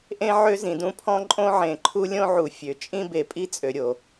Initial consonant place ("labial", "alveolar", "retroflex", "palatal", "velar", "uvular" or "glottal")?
glottal